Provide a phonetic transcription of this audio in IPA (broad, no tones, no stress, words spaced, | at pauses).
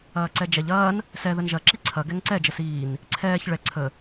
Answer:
ɐːǀɛd͡ʒɛʎ ɐːn | sɛ ðənʒɐ ǁiǀʰɐ ɡɛŋǀɛ d͡ʒəsiːn | ǀʰɛːç ɭɛ ǀʰə